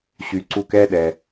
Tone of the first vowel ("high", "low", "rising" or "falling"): low